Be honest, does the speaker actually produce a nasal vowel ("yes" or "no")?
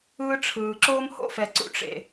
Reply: no